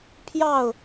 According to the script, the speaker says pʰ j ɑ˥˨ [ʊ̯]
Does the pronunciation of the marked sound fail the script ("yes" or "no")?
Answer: no